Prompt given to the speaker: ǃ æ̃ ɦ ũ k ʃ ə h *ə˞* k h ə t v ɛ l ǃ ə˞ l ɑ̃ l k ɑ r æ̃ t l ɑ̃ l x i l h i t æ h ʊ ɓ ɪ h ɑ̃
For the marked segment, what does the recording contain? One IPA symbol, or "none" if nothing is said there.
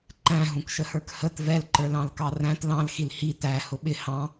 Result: ə˞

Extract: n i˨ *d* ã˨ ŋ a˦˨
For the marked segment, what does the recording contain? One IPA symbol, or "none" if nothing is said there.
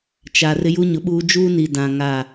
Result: d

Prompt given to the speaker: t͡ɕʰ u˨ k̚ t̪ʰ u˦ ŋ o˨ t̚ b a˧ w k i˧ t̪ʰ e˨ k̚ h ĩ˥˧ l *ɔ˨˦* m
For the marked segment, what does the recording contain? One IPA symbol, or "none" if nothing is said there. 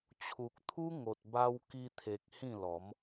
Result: ɔ˨˦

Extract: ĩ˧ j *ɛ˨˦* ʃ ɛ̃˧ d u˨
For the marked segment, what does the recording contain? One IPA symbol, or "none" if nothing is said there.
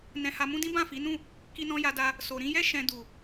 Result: ɛ˦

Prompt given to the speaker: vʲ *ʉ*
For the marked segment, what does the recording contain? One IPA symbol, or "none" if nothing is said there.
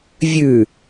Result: ʉ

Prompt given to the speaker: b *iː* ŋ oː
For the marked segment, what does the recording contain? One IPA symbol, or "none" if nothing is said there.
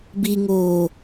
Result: i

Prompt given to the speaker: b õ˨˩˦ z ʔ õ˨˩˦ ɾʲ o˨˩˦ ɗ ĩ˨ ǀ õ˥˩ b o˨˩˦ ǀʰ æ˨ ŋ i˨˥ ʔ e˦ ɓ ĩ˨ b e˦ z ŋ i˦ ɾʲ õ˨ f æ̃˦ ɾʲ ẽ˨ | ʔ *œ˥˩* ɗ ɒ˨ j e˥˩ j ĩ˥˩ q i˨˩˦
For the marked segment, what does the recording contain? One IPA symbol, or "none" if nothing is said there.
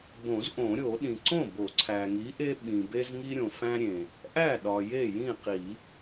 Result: æ˥˩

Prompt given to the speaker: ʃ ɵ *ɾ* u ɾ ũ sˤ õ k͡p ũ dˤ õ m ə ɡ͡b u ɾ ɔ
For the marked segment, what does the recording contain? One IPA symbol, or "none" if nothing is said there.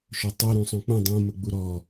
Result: tˤ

